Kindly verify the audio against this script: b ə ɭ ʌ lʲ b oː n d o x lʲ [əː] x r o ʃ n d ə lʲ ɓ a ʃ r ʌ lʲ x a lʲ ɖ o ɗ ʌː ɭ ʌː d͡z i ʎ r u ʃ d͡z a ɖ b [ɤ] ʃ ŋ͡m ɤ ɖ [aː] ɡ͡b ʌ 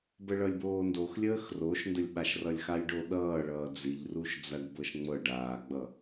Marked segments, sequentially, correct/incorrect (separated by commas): correct, correct, correct